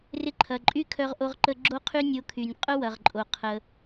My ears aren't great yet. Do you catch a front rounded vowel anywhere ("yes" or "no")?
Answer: yes